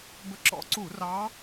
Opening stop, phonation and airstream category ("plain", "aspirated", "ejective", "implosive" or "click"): plain